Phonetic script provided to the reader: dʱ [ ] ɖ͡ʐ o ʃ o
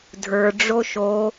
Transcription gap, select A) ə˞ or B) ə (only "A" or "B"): A